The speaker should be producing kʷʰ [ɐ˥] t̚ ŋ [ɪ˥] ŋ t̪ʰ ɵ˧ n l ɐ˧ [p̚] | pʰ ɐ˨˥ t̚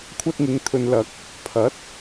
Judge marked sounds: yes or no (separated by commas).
yes, no, no